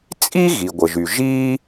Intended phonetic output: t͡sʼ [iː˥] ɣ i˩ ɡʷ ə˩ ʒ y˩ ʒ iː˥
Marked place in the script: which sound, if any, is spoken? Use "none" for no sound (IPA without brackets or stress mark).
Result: i˥